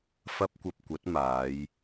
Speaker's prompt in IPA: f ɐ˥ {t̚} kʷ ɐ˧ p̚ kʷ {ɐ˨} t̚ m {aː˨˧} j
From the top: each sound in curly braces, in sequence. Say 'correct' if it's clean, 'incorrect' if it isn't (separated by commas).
incorrect, incorrect, correct